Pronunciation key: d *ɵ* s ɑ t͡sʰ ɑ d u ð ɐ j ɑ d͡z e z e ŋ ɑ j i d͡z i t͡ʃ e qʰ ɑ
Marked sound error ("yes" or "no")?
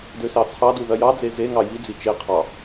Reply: yes